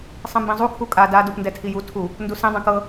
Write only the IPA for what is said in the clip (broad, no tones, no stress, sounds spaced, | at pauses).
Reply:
sˤ ĩ m b ĩ zˤ u kʰ u kʼ a d a d u p n d ɛ tʰ i j u tʰ u | n d u s ĩ dˤ ĩ k ɤ